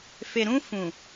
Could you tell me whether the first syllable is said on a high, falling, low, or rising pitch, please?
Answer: low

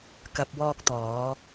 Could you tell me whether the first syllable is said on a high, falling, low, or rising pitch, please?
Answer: low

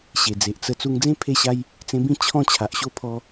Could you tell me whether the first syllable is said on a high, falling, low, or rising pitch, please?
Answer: low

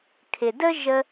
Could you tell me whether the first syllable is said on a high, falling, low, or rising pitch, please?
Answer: low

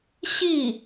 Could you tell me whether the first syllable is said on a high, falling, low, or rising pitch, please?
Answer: falling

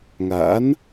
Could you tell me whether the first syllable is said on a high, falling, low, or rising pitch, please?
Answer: rising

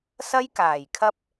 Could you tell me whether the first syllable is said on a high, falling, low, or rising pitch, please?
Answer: high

